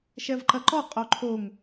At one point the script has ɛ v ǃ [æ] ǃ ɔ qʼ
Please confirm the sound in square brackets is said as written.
no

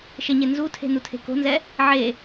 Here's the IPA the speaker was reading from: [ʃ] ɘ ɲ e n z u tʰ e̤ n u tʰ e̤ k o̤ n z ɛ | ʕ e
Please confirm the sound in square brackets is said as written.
yes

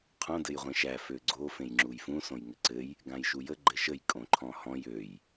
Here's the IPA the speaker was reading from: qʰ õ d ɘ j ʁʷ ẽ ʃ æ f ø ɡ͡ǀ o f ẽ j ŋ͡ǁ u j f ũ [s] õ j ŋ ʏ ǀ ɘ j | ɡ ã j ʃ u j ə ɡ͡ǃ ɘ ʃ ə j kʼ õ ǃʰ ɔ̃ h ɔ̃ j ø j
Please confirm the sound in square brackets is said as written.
yes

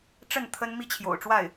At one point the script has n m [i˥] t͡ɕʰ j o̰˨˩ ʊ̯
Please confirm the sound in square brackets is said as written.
yes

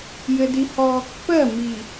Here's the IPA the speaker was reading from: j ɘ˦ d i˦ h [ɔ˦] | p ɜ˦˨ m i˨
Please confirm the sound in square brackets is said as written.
yes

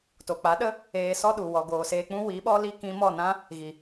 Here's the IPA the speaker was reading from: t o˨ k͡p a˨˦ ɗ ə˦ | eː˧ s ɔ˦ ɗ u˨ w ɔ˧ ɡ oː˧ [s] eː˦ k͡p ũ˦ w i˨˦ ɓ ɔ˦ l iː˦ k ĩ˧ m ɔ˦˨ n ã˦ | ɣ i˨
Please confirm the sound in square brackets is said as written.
yes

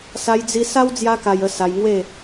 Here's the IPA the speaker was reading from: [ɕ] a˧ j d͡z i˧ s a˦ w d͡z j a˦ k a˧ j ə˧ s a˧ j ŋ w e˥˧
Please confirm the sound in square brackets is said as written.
no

